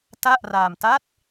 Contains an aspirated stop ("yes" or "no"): no